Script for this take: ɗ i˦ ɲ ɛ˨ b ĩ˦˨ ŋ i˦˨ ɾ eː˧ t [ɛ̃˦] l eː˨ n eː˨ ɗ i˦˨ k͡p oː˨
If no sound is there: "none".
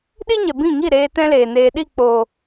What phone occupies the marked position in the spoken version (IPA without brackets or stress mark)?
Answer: ɛ̃˦